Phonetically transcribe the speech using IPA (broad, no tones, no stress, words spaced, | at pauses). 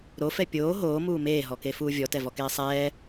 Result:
ɾofɛ pʲoː ɦoːmuː meːɦɔkefuː vʲɔtɛvɔkeː sˤɛː